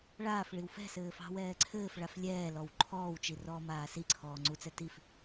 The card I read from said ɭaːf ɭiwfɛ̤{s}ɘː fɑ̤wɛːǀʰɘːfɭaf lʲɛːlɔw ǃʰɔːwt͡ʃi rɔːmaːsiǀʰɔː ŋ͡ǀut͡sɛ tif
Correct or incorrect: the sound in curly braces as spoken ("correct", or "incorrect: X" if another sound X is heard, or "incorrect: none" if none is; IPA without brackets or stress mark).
correct